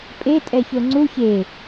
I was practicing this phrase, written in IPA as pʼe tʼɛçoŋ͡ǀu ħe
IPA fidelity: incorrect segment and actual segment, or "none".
ħ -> ç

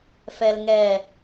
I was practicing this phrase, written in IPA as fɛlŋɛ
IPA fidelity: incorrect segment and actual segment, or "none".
none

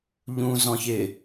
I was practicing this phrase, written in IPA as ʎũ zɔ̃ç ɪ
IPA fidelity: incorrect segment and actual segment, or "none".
none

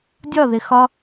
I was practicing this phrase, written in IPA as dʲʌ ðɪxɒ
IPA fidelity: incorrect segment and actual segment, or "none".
ʌ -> ɒ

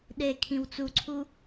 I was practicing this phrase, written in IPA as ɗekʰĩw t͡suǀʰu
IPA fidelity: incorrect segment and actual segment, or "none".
none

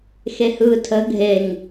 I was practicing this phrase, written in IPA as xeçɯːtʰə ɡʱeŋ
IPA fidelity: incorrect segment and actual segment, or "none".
ç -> h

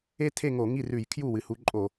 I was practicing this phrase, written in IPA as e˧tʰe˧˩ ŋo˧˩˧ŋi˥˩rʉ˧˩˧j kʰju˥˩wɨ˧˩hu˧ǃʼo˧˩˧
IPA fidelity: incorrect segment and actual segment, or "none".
none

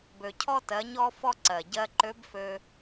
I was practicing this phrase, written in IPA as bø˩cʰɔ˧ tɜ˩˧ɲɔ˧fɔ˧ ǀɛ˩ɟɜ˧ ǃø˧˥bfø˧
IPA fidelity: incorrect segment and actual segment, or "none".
ɛ˩ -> ɜ˩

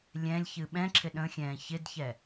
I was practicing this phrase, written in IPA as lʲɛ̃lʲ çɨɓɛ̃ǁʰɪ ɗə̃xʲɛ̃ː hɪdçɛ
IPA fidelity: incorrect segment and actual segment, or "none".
h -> ç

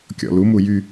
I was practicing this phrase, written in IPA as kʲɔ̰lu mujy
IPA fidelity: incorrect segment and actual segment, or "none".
none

